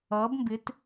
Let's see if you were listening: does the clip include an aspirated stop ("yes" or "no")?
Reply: no